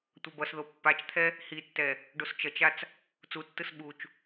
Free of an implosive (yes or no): no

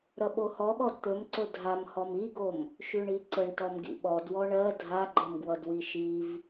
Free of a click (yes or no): no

